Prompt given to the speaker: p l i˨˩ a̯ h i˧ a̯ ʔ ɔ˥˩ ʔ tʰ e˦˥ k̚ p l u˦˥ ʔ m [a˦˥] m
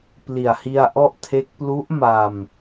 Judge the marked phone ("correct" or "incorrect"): incorrect